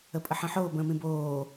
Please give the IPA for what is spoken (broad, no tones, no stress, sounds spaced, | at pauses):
ə pʼ ə ħ ə̃ ħ oː b ə̃ː m ĩ b oː